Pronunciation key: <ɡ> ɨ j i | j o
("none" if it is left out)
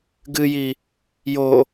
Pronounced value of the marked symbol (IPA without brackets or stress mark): ɡ